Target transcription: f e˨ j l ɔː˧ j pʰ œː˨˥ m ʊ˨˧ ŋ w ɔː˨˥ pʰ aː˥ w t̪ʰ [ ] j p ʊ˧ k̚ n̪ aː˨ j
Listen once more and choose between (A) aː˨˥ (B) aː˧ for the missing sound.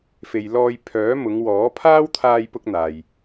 B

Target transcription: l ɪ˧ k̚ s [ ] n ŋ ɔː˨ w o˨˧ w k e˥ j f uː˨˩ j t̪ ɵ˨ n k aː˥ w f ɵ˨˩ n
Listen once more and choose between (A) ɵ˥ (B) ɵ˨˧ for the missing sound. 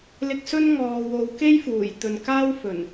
A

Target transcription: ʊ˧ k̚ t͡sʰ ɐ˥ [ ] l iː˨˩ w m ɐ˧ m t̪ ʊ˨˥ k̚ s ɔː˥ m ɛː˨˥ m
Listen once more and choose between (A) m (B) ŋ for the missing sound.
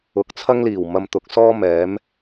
B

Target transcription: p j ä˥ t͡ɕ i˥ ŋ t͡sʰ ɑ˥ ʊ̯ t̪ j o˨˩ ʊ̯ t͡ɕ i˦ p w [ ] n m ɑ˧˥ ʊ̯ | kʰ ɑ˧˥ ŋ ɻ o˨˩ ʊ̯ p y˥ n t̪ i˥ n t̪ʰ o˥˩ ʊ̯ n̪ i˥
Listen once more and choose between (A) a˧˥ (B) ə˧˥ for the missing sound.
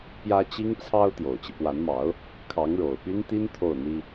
A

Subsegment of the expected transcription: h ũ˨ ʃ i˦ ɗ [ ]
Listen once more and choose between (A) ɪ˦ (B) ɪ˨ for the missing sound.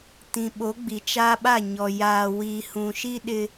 A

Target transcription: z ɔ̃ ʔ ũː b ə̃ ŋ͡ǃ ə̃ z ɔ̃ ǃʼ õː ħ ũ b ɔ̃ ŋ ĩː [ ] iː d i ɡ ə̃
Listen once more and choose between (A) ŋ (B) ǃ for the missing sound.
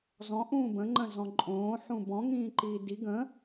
B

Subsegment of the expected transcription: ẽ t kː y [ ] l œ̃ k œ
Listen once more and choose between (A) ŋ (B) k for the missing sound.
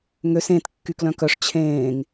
B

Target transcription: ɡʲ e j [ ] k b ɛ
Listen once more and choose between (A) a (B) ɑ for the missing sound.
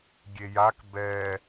A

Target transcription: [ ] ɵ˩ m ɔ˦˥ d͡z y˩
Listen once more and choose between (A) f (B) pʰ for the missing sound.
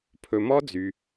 B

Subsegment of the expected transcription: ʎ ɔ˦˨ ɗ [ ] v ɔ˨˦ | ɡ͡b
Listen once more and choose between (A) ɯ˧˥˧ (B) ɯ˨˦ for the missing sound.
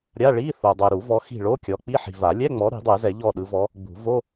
B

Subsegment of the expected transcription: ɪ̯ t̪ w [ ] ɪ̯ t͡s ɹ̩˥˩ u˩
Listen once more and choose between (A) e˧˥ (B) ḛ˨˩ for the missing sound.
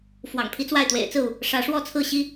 B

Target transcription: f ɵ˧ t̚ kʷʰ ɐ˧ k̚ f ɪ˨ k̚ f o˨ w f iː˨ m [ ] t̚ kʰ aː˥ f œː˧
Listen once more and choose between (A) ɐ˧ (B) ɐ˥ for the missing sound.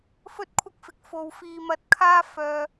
A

